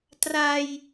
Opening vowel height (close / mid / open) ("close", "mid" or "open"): open